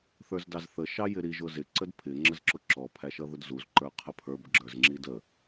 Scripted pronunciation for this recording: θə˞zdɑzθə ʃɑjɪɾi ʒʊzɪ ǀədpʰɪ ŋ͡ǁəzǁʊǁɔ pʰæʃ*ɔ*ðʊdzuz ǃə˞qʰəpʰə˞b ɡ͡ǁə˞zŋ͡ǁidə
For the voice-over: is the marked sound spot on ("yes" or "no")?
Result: no